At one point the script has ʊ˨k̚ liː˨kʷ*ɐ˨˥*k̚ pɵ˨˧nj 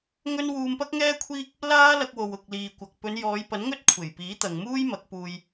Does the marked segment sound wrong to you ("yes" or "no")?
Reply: yes